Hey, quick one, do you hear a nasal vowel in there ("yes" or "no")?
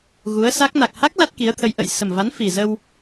no